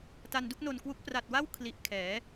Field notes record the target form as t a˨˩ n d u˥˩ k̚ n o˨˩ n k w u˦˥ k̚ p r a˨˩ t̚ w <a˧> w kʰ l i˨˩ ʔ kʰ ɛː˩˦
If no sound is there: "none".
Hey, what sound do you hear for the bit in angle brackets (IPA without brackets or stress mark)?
a˥˩